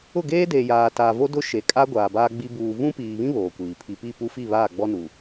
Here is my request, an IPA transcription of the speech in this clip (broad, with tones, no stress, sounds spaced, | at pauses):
ʊ˦˨ ɡ eː˦ d eː˨ j aː˨ t aː˨ v o˦ d ʊ˦ ʃ e˨ kʼ a˦ ɡʷ aː˨ b aː˦ ɡ͡b i˦ b uː˨ v ũ˦ p iː˨ β ĩ˦ β oː˨ kʷ iː˨ pʰ i˨ p i˦˨ p u˦ f i˦˨ β aː˦˨ ɡ͡b ɔ˦ n uː˨